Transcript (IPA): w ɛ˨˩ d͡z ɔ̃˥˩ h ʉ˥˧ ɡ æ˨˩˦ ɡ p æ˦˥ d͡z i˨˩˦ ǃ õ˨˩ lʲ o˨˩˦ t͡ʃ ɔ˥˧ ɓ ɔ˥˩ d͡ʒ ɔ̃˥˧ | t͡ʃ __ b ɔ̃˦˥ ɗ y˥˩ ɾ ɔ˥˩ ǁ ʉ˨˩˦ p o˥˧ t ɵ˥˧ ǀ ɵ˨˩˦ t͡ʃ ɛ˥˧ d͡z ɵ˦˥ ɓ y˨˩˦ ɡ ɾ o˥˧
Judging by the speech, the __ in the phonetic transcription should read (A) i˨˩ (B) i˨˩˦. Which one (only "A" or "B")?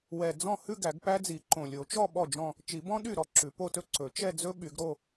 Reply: B